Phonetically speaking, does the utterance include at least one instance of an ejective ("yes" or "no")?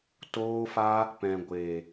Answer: no